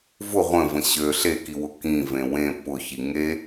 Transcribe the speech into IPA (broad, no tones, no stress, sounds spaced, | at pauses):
v ʊ ʁʷ ə̃ v ə̃ ɕ ø ɬ e k i w ʊ k ĩ v ẽ w ẽ p ʊ ç i ŋ e